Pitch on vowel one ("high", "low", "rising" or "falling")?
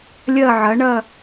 falling